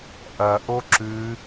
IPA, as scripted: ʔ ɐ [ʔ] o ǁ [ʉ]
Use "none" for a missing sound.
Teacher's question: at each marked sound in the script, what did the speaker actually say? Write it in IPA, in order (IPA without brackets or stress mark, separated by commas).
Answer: ʔ, ʉ